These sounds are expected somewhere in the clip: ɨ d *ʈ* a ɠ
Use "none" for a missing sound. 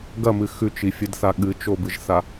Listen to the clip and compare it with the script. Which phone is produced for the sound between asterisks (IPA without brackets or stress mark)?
θ